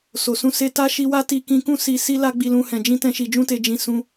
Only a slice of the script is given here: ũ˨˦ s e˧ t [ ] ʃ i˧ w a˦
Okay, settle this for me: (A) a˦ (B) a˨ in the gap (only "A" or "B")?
A